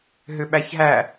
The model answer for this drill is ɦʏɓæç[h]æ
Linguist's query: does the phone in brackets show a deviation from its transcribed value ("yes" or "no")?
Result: yes